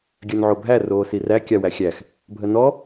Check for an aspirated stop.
absent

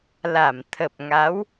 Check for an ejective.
absent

